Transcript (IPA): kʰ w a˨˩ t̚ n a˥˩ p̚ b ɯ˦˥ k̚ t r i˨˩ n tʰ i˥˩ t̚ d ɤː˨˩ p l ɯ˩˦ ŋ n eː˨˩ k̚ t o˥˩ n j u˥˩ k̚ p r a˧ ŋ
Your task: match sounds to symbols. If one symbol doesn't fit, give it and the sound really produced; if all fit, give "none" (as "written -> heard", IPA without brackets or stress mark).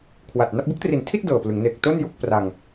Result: none